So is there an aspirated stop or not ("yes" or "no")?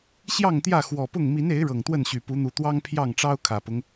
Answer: yes